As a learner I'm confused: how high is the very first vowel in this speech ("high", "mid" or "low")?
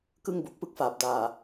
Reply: high